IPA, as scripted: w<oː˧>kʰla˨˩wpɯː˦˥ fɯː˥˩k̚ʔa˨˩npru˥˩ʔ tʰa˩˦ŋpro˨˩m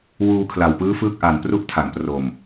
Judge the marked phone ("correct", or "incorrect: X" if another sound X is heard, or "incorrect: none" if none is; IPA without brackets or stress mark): incorrect: uː˧